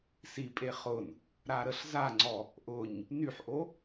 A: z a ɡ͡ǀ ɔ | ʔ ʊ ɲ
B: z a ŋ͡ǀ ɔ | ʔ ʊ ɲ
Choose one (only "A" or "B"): B